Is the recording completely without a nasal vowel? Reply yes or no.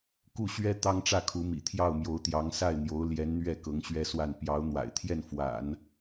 yes